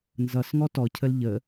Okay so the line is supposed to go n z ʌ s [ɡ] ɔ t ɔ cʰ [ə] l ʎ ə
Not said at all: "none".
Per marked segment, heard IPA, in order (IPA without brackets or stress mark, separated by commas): ŋ, ə